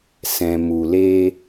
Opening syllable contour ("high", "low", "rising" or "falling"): low